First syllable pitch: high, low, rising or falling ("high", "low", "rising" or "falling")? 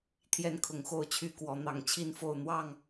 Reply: high